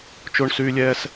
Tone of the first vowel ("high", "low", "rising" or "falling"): high